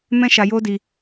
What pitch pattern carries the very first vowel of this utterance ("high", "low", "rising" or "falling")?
high